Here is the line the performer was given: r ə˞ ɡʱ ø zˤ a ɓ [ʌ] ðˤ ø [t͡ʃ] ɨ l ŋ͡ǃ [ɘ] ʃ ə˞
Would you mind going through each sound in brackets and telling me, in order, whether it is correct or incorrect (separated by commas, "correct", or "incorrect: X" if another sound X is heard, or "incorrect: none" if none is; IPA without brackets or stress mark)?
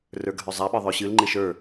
incorrect: ə˞, incorrect: ɕ, incorrect: e